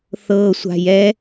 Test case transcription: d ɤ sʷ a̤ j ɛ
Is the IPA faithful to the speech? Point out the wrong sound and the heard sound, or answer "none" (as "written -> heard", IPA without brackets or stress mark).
d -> θ